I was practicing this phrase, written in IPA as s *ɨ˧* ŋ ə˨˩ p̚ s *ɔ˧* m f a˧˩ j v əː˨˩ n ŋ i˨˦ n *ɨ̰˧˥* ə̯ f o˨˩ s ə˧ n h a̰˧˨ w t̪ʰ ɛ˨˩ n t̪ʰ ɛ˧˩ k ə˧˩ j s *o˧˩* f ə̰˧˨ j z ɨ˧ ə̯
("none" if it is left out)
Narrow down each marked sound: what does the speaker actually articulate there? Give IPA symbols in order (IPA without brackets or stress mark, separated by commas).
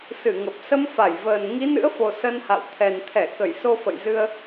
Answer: ɨ˧˩, ə˧, ɨ̰˧˥, o˧